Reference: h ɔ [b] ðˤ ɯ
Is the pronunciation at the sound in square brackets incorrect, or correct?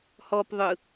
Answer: incorrect